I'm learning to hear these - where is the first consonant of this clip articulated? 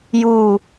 palate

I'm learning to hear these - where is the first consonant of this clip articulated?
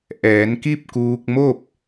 throat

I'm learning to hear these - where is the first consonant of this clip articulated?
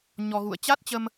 palate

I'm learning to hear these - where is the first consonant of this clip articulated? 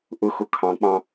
throat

